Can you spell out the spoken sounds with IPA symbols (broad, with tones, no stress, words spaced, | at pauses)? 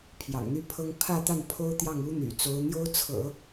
pʰjɑ̰˨˩ŋn̪y˥˩pʰɤ˥ŋ pʰä˥˧t̪a˥˩n pʰo˥ʊ̯t̪jɑ˥˩ŋu˥n̪y̰˨˩ t͡so˧˥ʊ̯n̪jo˥ʊ̯t͡sʰɤ̰˨˩˦